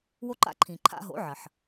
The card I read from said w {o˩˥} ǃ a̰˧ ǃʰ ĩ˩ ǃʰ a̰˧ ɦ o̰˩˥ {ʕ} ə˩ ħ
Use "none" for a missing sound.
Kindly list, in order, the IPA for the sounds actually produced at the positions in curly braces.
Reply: o˧, ʕ

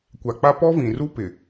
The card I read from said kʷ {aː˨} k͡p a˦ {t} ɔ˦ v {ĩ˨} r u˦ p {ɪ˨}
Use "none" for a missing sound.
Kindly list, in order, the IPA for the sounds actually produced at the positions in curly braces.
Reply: a˨, p, ĩ˨, ɪ˨

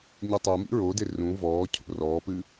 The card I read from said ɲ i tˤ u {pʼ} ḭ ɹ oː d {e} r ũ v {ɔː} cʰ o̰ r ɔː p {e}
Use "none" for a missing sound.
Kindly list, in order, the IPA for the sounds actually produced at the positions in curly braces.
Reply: m, e, ɔː, ɨ

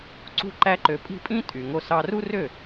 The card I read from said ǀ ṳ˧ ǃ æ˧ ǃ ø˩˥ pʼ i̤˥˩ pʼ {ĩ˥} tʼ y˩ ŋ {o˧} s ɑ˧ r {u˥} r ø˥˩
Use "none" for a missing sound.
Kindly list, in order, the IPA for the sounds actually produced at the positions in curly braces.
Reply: ĩ˥, o˧, u˥

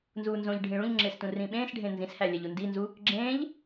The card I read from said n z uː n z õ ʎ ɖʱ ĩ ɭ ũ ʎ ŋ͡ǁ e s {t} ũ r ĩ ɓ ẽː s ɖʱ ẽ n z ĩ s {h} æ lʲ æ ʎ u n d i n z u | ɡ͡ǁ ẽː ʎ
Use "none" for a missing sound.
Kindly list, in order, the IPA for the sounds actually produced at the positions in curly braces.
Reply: t, h

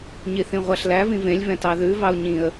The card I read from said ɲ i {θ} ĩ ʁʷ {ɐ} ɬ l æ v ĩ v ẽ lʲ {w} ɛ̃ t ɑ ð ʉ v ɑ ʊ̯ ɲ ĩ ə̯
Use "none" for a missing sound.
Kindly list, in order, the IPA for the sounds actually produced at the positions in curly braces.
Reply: θ, æ, v

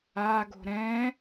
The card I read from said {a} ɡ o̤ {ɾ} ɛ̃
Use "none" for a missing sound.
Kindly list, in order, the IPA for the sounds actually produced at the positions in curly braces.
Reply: a, ɾ

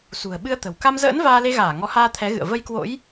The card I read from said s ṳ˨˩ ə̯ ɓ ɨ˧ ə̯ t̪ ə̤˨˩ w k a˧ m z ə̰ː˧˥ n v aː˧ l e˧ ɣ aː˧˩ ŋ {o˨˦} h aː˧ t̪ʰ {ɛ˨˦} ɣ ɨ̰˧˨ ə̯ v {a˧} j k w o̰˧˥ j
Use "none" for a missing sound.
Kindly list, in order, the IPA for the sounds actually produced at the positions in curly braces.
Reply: ɔ˨˦, ɛ˨˦, ə˧

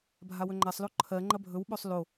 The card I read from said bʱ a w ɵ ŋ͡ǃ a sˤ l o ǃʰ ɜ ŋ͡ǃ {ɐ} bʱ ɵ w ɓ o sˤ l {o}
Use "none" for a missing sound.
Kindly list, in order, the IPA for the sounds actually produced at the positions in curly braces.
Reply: ɐ, o

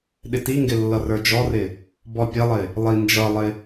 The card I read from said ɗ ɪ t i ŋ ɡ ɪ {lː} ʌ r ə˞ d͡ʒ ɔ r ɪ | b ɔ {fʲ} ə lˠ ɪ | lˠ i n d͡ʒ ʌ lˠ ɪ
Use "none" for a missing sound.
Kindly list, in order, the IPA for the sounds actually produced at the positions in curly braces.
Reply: lː, pʲ

